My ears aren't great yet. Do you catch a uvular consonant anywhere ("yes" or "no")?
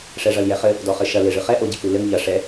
yes